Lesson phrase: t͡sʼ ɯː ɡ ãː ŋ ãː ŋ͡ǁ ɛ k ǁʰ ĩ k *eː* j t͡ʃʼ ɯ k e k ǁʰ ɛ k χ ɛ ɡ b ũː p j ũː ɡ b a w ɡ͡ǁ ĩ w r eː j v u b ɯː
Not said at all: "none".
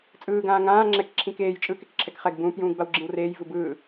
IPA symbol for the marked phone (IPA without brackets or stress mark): eː